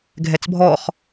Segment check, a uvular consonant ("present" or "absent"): present